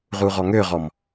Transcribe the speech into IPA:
ʁuʁɔŋøʁɔm

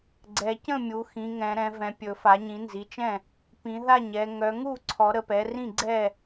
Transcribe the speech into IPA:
ɡ͡ǀɛ˩˧cə̃˥˩ mʲu˩˧xĩ˩˧ ŋɛ̃˩˧ɾɛ̃˩˧vɛ̃˩˧pʲɵ˩˧ fa˩˧ɲĩ˩˧nzi˩˧t͡ʃɛ̃˥˩ | pĩ˩˧ða˥˩ɲɛ˩˧ ŋœ˩˧ŋu˥˩ǀʰɔ˩˧ ɾə˩˧pɛ˩˧ rĩ˥˩ɡ͡ǀɛ˥˩

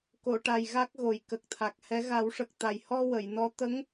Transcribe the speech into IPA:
ko˨˩˨ʈa˨˩j ɣa˦˥k̚ɣo˨˩j kə˨˩k̚t̪ʰa˨˩k̚hɛ˧˥ ɣa˨˩˦wʂə˨˩k̚t̪a˨˩jhɔ˧ wə˨˩˨jnɔ˧˥ t̪ə˧˥ŋ

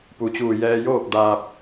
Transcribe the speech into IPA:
pu˩t͡ɕuː˧˩ jɛː˧joː˥˨k̚daː˧p̚

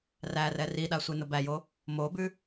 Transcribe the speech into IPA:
rærɛ riɗa sʷenʊbæjo | mobʉ

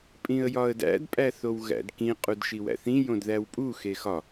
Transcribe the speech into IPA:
pʼĩə̯jɒə̯dæ̰d pʼæθowɣæ̰dkĩ qʼudʃiwæ̰θĩ jõdðæwpʼu xexɒ

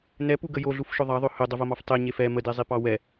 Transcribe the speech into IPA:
nɛpuɡə joɮufʃʊ ðˤɑðˤɵ hɵdˤəvomɑf tˤeɲef ɛ mədezˤipɑ wɛ

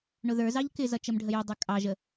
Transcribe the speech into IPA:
ɳʊðə˞zɑʎ kɪzʌ t͡ʃəmɖʱəjʊdˤə˞ kʼɑʒə

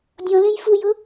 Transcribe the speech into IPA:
dʲɔ̃lẽj fujʊ

